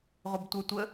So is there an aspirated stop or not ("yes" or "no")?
no